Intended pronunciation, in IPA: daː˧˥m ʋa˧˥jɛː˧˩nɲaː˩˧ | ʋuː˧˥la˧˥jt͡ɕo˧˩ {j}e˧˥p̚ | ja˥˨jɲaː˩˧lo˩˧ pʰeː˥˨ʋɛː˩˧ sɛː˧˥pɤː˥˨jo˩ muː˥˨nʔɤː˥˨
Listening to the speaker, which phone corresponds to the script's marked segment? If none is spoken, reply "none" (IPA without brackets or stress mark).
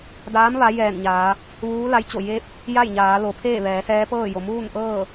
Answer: j